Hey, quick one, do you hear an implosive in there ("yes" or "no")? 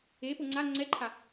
no